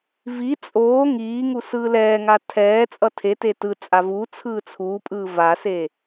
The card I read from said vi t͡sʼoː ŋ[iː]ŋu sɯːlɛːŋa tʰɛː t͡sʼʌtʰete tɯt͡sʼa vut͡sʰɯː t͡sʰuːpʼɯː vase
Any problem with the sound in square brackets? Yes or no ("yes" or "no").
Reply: no